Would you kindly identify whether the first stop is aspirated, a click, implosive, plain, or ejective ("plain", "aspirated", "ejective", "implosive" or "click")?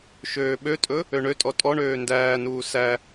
implosive